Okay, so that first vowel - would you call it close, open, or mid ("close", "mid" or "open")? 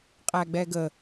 open